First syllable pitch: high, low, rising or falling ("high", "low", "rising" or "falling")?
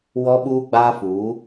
high